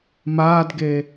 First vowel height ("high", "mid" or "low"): low